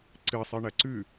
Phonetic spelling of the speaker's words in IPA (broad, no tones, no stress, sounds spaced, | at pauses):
ǀ ɨ sˤ ɨ ɳ ɐ ǀ ʉ